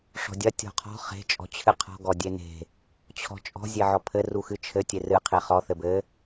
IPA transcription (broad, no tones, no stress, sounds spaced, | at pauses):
ʂ ɔ̤ dʲ ɐ tʲ ɔ̤ qʰ ɔ̤ χ e̤ t͡ʃʼ ɔ̤ t͡ɕʰ ɨ qʰ ɔ̤ ɡ ɔ dʲ e n e̤ | t͡ɕʰ ɔ̤ t͡ʃʼ ɔ̤ zʲ e ʕ ɔ pʰ ɘ r u x ɨ t͡ʃʰ ɘ tʲ e r ɨ qʰ e χ ɔ θ ɘ b ɘ